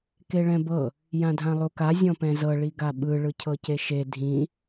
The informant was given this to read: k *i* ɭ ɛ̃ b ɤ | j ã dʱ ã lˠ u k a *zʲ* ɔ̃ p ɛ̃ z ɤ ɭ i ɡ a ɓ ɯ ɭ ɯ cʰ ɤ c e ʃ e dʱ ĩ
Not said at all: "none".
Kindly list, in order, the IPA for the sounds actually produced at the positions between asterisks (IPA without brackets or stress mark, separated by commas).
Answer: e, zʲ